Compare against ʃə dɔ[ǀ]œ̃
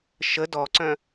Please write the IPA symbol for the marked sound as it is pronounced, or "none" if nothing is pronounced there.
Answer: ǀ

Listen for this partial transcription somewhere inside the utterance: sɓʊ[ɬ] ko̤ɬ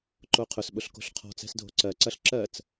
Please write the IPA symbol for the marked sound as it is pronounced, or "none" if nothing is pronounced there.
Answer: ɬ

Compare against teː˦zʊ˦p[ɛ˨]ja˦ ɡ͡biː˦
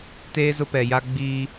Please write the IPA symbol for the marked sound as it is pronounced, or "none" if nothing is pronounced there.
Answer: ɛ˨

